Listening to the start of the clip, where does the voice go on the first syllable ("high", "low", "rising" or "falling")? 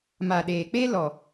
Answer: low